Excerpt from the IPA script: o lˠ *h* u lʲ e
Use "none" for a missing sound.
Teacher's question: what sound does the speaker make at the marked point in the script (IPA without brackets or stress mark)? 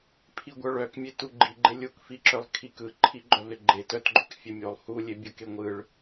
h